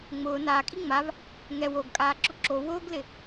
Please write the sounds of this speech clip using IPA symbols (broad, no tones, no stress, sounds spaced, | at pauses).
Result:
ŋ͡m ʊː n aː kʼ i ŋ͡m a v | ŋ ɛ w o ɡ kʼ aː ǁ ʊ ǁ o w ʊː ɡ l ɪ